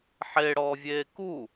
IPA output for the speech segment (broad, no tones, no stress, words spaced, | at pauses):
ħeɽɔːvʲeː ku